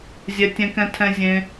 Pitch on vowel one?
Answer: high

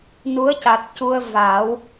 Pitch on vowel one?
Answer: rising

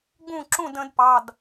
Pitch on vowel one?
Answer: falling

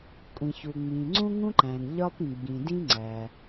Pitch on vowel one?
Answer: low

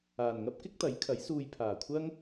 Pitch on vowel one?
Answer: low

